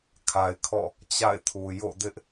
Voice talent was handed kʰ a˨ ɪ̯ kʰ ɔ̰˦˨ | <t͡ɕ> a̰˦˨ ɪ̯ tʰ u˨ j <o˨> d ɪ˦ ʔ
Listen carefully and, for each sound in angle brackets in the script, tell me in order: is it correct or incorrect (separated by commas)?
correct, incorrect